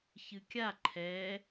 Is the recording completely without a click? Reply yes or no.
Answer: no